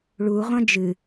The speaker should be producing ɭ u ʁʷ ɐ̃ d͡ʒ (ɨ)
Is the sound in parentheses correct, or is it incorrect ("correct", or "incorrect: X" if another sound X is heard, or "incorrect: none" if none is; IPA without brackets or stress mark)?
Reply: correct